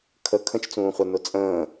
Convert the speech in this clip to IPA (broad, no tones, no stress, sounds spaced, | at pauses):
kʰ ə kʰ ə̃ t͡ʃ t͡s ũː χʷ ə n ʊ t͡sʼ ə̃ː